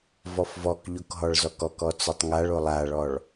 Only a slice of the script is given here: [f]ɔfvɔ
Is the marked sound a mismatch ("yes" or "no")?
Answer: yes